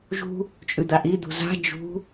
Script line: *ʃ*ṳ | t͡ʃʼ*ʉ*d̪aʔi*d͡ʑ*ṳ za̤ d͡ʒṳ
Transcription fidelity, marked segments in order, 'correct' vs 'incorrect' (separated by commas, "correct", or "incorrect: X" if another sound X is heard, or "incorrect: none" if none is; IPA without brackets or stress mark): incorrect: ʒ, correct, incorrect: d̪